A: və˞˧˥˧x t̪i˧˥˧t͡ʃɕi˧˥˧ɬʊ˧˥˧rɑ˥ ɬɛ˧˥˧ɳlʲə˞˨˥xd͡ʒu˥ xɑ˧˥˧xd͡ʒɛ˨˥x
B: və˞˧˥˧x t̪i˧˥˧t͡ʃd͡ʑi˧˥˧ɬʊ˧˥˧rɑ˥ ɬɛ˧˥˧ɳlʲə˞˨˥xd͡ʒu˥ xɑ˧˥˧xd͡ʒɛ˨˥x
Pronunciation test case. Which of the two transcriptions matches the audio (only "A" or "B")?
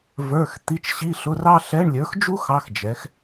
A